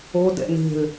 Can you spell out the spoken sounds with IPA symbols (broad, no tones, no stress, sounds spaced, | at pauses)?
o d ɛ̰ n e̤ l